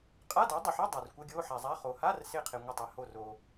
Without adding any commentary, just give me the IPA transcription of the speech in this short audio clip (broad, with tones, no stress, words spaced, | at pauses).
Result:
qʼa˧˥˧do˩˥dˤə˩ħe˧˥˧ dˤa˩r kʷɪ˧˥˧ɡʲo˧˥˧ħa˩zˤa˧˥˧ χo˩ha˧˥˧rsɪ˧˩qʰɪ˩ ŋʷə˧˩tˤe˩ho˧˩ ro˩